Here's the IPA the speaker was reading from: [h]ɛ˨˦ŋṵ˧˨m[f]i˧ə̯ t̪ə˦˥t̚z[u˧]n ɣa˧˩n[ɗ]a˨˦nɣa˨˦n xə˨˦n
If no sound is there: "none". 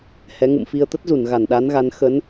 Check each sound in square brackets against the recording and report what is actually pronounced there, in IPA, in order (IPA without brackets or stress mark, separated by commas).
h, f, u˧˩, ɗ